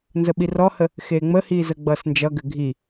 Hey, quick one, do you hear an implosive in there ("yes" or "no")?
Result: yes